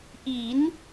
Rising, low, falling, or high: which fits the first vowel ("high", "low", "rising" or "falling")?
rising